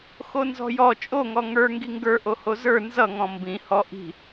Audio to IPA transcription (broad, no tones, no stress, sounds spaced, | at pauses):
x o n z ɔ̤ j ɔ t͡ʃʼ o ŋ ɔ ŋ ə˞ ŋ ɡ i ŋ ɡ ə˞ ʔ o h o z ə˞ n z ʌ ŋ ɔ̃ m b ĩ h ɔ ʔ i̤